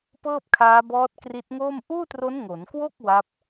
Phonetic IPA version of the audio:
p ɤː˥˩ p̚ kʰ aː˦˥ b ɔː˦˥ t̚ k r i˦˥ t̚ ŋ oː˥˩ m ʔ uː˥˩ t r o˦˥ n ŋ o˩˦ n k w o˥˩ k̚ w a˦˥ p̚

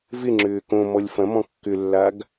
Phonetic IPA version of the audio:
v ɪ ŋ͡ǁ ʏː k õ m ɔ lʲ f ɐ̃ m ɔ̃ kː ʏ lː a ɡ

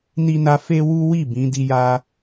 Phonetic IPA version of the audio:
n i˦ n a˦ f e˦ w u˦ w i˦˨ b ĩ˨˦ d i˦ j a˦

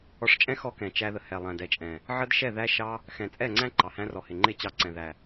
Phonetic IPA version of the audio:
ɔ˧ ʂ t͡ʃʼ ɛ̃˦ x ɔ˦ k ɛ̃˨ t͡ʃ æ˧ ð ə˨ h ɛ˨ lˠ æ̃˨ d ɛ˨ t͡ʃʼ ɛ̃˨ | ʕ ə˦ d ʃ ɛ˦˨ ð æ˦ ʃ ɑ˦ | x ɛ̃˨ t͡sʼ ɛ˦˨ ŋ͡ǀ æ̃˦ ǃ ɑ˨ h æ̃˦ r ɔ˨ h ɪ˨ ŋ͡ǃ ɪ˦˨ t͡ɕ ɑ˧ ǀ ɛ̃˨ ð æ˨

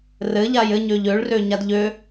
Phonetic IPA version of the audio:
r ɘ ʎ a j ɘ ɲ ø ʎ ø ɭ r ø ɲ a d ʎ ø

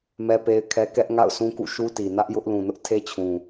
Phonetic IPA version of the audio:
m ɛ˦ p e˦ ɪ̯ kʰ ɛ˦ k ɛ˦ ʔ ŋ a̰˦˨ ʊ̯ s ũ˦ k ṵ˦˨ ʃ u˦ t i˨ n ä˦ ʔ j ʊ˦ ʔ l ũ˨ n ʊ˦ ʔ tʰ e˦ t͡ɕʰ ũ˨

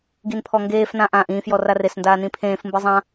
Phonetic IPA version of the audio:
ɡ i n pʰ ɔ ŋ ɡ eː f n ã ʔ ãː ʔ ĩː f j ɔ r a r e s n d aː n ĩ pʰ ẽː f m b ɯ zˤ ã

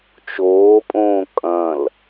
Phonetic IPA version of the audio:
t͡ʃ oː pʼ õː kʼ ɐ̃ l

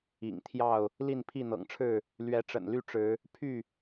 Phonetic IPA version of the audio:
ḭ˨˩ ŋ t̪ʰ j ɑ˥˨ ʊ̯ | l i˥˨ n pʰ i˥˨ n̪ ɤ̰˨˩ ŋ ʈ͡ʂʰ ɻ̩˥˨ | l ɥ ɛ˨˦ ʈ͡ʂ ə̰˨˩ n l y˥˨ ʈ͡ʂ ɻ̩˨˦ | pʰ y˥˨

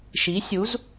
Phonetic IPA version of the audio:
ʃ i˨˦ sʲ u˨˦ z

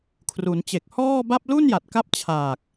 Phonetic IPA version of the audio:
kʰ r u˩˦ n t͡ɕ e˨˩ k̚ h ɔː˥˩ b a˥˩ p̚ l u˥˩ n j a˨˩ t̚ k a˦˥ p̚ t͡ɕʰ aː˨˩ k̚

